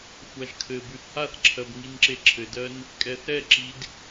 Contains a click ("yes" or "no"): yes